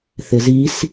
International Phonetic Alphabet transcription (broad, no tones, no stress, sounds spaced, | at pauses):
θ ɪ z i s